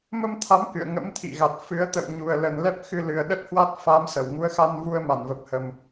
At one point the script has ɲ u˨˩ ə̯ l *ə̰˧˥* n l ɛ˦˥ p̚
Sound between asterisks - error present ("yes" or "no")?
yes